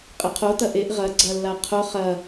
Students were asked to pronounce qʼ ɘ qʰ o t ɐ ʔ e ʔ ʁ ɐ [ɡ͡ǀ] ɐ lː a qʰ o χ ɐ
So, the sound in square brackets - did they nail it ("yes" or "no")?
yes